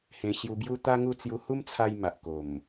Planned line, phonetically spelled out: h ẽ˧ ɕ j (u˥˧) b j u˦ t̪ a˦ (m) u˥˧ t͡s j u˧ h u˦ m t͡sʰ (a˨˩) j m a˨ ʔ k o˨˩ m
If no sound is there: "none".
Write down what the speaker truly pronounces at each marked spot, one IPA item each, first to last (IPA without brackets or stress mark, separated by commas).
u˧, ŋ, a˧